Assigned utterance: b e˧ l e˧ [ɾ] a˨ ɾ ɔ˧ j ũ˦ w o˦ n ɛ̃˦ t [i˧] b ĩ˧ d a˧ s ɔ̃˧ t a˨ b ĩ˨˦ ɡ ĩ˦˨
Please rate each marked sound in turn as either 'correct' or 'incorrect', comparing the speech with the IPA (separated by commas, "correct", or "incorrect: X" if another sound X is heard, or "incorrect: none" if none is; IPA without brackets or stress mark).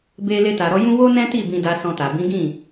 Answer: incorrect: t, incorrect: i˦˨